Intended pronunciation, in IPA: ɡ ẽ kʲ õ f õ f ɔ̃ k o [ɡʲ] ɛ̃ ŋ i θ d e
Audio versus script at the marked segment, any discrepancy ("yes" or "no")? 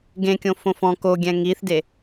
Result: no